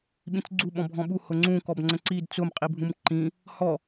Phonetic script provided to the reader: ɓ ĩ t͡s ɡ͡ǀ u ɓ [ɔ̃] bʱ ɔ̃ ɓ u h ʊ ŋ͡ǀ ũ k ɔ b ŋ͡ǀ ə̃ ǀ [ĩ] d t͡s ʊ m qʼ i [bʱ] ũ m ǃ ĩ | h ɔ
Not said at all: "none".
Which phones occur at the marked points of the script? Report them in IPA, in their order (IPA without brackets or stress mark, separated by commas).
ɔ̃, i, bʱ